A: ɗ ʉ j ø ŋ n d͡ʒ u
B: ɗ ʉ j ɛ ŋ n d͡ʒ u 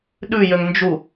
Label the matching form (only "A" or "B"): A